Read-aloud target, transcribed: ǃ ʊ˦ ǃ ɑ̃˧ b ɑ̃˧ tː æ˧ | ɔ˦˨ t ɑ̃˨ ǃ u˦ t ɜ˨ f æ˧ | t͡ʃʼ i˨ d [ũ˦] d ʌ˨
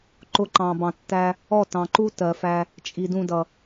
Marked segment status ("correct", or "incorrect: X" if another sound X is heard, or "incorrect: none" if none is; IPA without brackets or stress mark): incorrect: ũ˧